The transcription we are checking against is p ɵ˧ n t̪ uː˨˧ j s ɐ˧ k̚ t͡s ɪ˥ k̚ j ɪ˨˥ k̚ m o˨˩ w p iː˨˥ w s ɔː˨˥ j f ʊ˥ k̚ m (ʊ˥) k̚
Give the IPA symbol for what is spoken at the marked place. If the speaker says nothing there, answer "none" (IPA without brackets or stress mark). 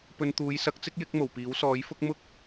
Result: ʊ˥